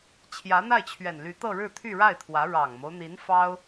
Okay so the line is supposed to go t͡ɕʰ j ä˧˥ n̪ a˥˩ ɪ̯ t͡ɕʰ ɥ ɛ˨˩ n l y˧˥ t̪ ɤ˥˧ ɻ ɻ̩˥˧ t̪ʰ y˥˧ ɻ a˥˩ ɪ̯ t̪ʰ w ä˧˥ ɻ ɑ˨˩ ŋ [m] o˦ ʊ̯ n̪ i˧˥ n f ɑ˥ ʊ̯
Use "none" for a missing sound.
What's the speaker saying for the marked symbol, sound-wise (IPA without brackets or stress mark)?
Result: m